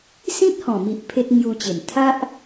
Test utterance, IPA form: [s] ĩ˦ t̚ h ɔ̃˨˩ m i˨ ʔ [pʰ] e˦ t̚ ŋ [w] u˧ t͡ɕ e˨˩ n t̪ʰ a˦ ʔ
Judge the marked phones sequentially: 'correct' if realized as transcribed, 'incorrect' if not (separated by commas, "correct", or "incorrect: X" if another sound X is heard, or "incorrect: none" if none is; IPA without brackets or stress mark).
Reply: correct, correct, incorrect: j